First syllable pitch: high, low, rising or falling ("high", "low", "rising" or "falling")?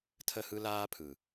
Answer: falling